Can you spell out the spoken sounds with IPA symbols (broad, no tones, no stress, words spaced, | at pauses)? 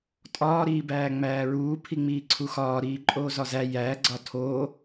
tʼɒːɾiːbæː ŋ͡mæːɹuː pʰiŋ͡miːǀʰuxɒː ɾiːǃʼoːzɒzæ jæ ɡ͡ǀɒtʰoː